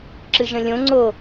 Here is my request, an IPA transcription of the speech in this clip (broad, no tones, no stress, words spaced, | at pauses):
ǁɨʒə̃lʲõ ŋ͡ǀo